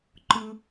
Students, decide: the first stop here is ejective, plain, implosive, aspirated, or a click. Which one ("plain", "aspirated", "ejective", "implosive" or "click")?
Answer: click